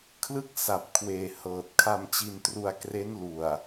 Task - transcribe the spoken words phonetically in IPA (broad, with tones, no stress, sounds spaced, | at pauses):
kʰ l ɯ˥˩ k̚ s a˨˩ p̚ kʰ w eː˨˩ h ɤː˨˩ t̚ kʰ a˧ m t͡ɕ i˧ n t r u˧ a̯ k r e˦˥ n l u˨˩ a̯